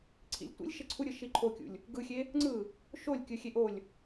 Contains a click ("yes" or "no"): yes